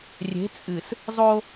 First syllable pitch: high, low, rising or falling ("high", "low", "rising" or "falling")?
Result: rising